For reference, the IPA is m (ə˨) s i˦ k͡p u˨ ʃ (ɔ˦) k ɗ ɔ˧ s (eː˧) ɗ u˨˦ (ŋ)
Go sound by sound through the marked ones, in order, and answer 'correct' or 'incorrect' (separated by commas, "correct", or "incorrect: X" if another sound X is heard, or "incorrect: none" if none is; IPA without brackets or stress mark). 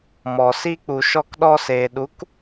incorrect: ɔ˨, incorrect: ɔ˧, incorrect: eː˨, incorrect: k